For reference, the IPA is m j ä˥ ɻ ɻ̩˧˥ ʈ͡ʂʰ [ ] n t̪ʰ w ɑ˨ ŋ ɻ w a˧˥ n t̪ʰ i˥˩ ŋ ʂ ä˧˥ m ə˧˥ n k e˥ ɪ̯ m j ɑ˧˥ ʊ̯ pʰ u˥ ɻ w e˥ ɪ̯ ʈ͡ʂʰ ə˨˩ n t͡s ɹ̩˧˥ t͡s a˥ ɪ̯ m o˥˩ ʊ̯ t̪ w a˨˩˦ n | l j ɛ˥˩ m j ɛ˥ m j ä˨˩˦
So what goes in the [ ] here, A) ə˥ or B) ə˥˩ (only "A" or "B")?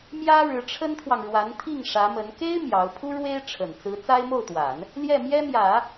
A